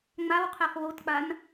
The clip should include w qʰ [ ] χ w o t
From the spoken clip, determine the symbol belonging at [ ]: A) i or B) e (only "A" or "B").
B